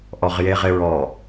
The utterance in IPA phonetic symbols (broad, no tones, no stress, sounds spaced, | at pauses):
ʔ ɔ ʁ j e ʁ ɪ ɹ ɔ